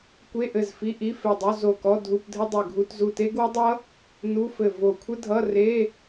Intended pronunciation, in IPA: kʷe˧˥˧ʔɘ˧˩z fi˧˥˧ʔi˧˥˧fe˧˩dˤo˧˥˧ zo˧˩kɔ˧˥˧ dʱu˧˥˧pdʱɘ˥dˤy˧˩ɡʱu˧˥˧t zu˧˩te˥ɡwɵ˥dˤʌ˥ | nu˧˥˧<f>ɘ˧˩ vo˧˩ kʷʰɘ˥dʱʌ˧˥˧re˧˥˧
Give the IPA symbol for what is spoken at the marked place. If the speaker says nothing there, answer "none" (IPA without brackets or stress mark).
f